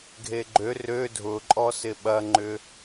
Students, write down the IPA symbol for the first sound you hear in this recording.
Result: ɡʱ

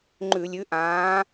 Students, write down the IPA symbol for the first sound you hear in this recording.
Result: ŋ͡ǃ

